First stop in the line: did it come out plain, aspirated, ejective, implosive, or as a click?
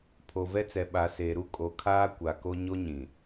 aspirated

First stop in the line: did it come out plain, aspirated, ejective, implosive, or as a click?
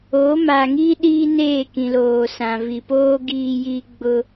implosive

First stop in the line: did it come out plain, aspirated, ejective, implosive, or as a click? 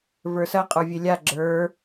ejective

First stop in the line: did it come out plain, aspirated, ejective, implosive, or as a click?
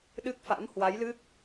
implosive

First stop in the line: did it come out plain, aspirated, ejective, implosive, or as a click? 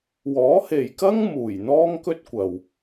plain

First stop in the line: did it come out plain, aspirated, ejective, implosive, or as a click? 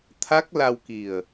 aspirated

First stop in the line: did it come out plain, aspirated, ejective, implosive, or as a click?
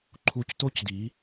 click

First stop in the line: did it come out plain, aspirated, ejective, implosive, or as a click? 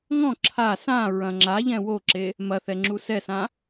click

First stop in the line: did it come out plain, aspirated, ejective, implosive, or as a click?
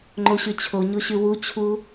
click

